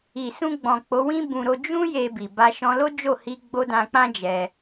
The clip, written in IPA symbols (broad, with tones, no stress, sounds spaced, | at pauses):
i˨ s ũ˧ ɡ͡b ɔ̃˨ k͡p o˨˦ w ĩ˦ b ũ˧ ɾ o˧ d͡ʒ ũ˦ j e˧ b i˨ b a˧ ʃ ɔ̃˧ l o˦ d͡ʒ o˦˨ h i˧ ɡ͡b o˦ d ã˧ k͡p ã˦ d͡ʒ ɛ˧